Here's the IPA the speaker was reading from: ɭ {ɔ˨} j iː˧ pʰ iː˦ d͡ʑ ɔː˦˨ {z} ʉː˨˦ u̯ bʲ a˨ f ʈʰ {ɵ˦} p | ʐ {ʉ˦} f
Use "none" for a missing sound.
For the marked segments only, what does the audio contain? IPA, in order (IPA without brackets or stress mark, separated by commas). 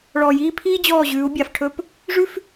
ɔ˨, ʑ, ɵ˦, ʉ˦